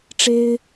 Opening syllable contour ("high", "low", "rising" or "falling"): high